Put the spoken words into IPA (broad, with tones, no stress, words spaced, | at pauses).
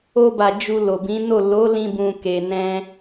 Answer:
o˧ba˨ d͡ʒu˧lo˨bĩ˨˦no˦˨ lo˨˦lĩ˧bũ˨ ke˨ nɛ̃˧